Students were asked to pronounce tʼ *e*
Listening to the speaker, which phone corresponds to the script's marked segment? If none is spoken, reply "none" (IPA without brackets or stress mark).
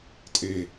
e